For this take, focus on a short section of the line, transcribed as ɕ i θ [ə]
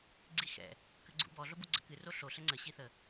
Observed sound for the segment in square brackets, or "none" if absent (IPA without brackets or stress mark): ə